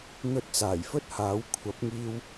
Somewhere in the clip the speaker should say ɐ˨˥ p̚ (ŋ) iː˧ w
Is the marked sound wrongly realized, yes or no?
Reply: no